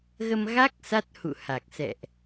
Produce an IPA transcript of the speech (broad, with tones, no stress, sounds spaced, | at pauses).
ɣ ə˧ m ɣ a˦˥ k̚ s a˦˥ t̚ h ṵ˧˨ h a˨˩ k̚ s ɛ̰˧˨ ʔ